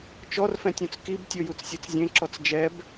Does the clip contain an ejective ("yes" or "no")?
no